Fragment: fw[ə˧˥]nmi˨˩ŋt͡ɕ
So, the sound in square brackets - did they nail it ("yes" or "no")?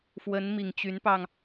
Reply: yes